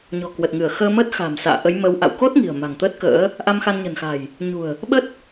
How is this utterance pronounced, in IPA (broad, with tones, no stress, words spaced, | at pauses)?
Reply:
ɲɔ̤˨˩kwə˨˩t̚ŋɨ˧˩ə̯ xəː˧məː˦˥t̚xa̤˨˩m sa̰ː˧˨ʔə˨˦jmə˨˦wʔa̰˧˨w ko˦˥t̚ ŋi̤˨˩ə̯ma̤˨˩ŋt̪ə˦˥t̚kə̰ː˧˥ | ʔa˧mxa˧nɲə̤˨˩nxa̤˨˩j | ɲṳ˨˩ə̯ | ɓə˦˥t̚